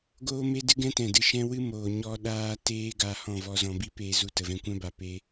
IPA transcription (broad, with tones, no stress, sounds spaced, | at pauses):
ɡ oː˦ m e˦ d ɨ˦ ɡ ɛ̃˦ t ɛ̃˨ d ɨ˧ ʃ ɛ̃˦ w ɨ˦ m oː˨ ɲ ɔ˦ ɗ aː˦ t eː˦ ɡ a˧ h ɔ̃˦˨ v ɔ˧ z ɔ̃˧ b i˦ p eː˧ z u˧ t ə˨ v ɛ̃˧ kʷ ɛ̃˦ b a˨ p e˦